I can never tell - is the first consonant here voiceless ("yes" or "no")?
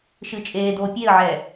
yes